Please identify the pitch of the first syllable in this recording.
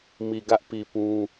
low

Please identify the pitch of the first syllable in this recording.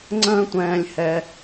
high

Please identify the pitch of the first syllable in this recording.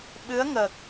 rising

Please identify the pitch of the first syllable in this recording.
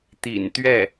low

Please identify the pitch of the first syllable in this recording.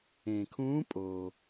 low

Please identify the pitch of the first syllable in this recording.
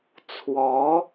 rising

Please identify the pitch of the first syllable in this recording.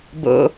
high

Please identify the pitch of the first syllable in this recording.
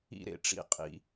high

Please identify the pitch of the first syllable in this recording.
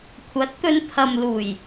rising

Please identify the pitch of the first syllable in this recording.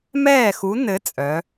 falling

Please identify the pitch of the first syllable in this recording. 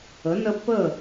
rising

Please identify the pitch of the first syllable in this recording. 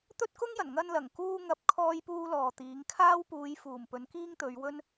high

